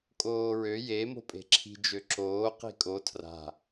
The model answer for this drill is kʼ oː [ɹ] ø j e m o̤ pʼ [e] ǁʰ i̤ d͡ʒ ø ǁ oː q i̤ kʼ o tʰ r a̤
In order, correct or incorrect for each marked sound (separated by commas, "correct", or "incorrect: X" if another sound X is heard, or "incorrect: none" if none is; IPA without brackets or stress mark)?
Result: correct, incorrect: e̤